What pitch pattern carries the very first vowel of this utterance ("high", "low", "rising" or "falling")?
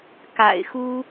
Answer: low